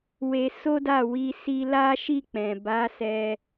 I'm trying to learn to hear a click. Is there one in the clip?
no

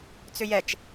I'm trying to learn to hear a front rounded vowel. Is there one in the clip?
yes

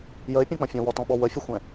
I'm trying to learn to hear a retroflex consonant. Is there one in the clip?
no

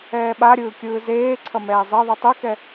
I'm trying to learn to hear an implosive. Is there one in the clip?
yes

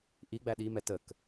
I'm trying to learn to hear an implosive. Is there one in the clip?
yes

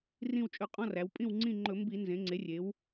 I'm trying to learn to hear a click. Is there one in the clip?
yes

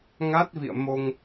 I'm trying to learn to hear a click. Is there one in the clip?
no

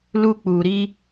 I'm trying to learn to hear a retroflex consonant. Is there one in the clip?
no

